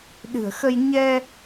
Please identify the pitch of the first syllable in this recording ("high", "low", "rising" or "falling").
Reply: low